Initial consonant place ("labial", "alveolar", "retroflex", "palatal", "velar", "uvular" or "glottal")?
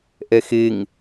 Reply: glottal